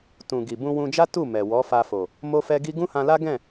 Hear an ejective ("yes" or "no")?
no